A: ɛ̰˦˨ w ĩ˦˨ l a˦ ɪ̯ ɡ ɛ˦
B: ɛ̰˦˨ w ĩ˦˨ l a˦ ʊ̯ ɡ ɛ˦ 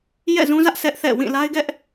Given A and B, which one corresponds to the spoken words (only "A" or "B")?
A